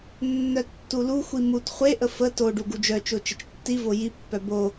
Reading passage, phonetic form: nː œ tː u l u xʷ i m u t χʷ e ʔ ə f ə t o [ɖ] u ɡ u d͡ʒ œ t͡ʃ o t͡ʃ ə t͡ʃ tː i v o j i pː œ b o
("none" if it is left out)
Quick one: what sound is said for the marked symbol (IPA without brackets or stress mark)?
ɖ